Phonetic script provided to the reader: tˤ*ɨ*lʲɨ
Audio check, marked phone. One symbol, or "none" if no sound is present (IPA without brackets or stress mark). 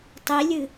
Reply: i